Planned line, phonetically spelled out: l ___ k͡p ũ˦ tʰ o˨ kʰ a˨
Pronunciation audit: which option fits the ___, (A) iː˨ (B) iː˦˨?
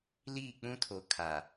B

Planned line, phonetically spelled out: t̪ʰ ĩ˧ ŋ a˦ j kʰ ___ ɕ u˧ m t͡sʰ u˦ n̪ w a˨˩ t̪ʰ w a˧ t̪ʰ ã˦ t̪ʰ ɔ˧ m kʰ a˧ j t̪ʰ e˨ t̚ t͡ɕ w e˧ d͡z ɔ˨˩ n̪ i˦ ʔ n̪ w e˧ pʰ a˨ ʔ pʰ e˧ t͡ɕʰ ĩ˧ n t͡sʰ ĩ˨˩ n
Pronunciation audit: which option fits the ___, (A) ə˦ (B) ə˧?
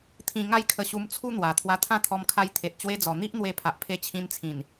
B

